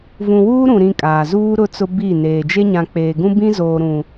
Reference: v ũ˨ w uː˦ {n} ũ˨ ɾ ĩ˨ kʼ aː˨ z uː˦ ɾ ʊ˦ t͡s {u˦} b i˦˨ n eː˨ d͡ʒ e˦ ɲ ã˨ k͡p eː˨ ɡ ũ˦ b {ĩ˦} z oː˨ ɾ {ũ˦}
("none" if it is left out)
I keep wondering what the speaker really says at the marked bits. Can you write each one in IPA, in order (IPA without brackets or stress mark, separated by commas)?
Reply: ɾ, ʊ˦, ĩ˦, ũ˨